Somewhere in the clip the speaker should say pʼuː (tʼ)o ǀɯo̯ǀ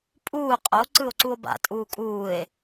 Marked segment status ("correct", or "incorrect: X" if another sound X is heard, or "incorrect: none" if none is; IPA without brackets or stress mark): incorrect: qʼ